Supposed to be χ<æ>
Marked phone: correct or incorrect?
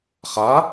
incorrect: a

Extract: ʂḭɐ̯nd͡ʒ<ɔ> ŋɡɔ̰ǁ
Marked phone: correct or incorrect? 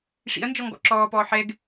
correct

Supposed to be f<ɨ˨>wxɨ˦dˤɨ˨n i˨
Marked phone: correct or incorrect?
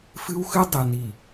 incorrect: ɨ˦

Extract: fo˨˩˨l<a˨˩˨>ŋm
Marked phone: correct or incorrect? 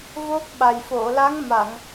incorrect: a˧˥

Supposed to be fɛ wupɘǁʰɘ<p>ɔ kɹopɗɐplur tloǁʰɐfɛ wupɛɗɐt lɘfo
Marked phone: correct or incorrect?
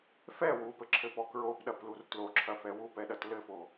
correct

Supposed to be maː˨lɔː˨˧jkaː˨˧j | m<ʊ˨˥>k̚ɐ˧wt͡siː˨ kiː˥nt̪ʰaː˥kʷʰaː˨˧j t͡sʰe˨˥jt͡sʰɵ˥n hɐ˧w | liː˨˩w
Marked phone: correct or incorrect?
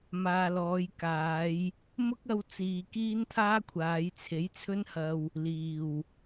incorrect: ʊ˥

